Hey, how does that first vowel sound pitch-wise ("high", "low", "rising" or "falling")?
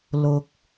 low